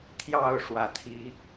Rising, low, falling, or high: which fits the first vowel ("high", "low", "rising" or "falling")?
falling